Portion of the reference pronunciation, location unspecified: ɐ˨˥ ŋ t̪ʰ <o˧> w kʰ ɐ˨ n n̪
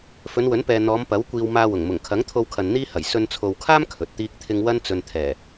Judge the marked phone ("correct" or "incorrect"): correct